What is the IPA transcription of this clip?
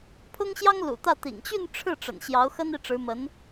pʰ ʊ˥ ŋ ɕ j ɑ˥ ŋ l ṵ˨˩ t̪ ä˥˩ t̪ ḭ˨˩ ŋ t͡ɕ y˥˧ n ʈ͡ʂʰ ɻ̩˥˩ ʈ͡ʂ ə̰˨˩ n ɕ j ɑ˧˥ ʊ̯ x ə˥ n i˥˩ ʈ͡ʂ ɻ̩˧˥ m ə˧˥ n

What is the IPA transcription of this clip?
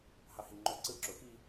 h ɑ h i ŋ͡ǃ o ǀ ɯ ǁ o x i

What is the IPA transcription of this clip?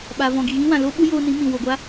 ɓ a˨ v ɔ̃˨ ɡ i˨ ɣ ĩ˦ w ã˨ l o˦ ɓ u˦ j oː˧ n ĩ˨˦ m ĩ˨ w o˨ ɡʷ a˦

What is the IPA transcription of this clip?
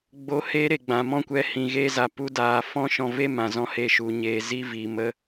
ɡ͡b o˧ h eː˦ ɾ e˨ ɡ͡b ã˨ m ɔ̃˦ kʷ ɛ˧ h ĩ˨ ɣ eː˧ z a˨ p u˧ d aː˨ f ɔ̃˦ ʃ ɔ̃˧ v e˦ m ã˨ z ɔ̃˧ h e˧ ʃ u˨ ɲ eː˨ z i˧ v i˨ m ə˧

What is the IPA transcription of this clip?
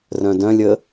r œ̃ d œ̃ lʲ ə

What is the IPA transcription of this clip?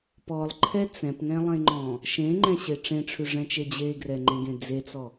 p ɔ lˠ ǃʰ ɛ t͡s ɛ̃ p ŋ ɛ̃ lˠ ẽ ŋ͡ǃ ɔ̃ | ʃ ẽ ŋ͡ǃ ɛ̃ ɕ e ʈ͡ʂ ẽ ʈ͡ʂʰ ʉ ʐ ɛ̃ t͡ʃ e d͡ʑ e ɡ r ɛ ŋ͡ǃ ẽ ɡ ẽ d͡z e t͡s ɔ

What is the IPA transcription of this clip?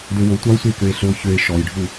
d ø w o tʷ ɑ o̯ sʷ e k ø e̯ ɬ ɵ o̯ ç ø e̯ ʃ ɔ j ɖʱ u

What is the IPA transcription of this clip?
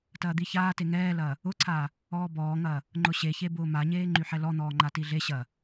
t ɐː d̪ i ç aː t e ŋ ɛː l ɐː | ʊ ǀʰ aː | ɔː b ɔː ŋ ɐː | ŋ͡ǃ ʊ ɕ e ç e b ʊː m a ɲ eː ŋ͡ǃ y ħ ɛ l ɔ n̪ ɔː ŋ͡ǃ a t i ɮ e ɕ ɐː

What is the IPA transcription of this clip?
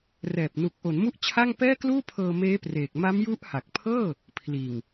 r ɛː˨˩ p̚ n u˨˩ k̚ ʔ o˩˦ n m u˥˩ ʔ t͡ɕʰ a˥˩ ŋ p ɛː˥˩ k l uː˥˩ pʰ ɤː˧ m eː˦˥ p r eː˨˩ k̚ m a˦˥ m j u˦˥ ʔ h a˨˩ k̚ pʰ ɤː˥˩ | pʰ l iː˨˩ ŋ

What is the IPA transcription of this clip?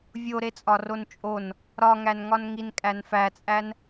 vʲ o ɾ e t͡sʼ ɒ r o n t͡ʃʼ o n | ɾ ɒ ŋ æ n ŋ ɒ n ŋ i n kʼ æ n f æ t͡sʼ æ n

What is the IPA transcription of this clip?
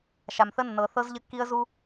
ʃ a˨ m θ ə˦ nː ɤ˨ θ ɤ˦ z ʎ ə˦ kː i˦ ə̯ z u˦

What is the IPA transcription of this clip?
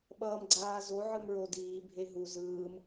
ɓ ʌː m ɡ͡ǀ aː z o ʕ ɯ m ɹ o d iː bʱ e ɦ u z ɯː m

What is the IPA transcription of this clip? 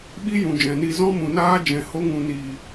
ɓ i˦ j ũ˨ d͡ʒ ɛ̃˨ n i˧ z ɔ̃˦ m ũ˨ n aː˦ d͡ʒ ɛ̃˨ h o˧ ŋ ũ˨ n iː˨

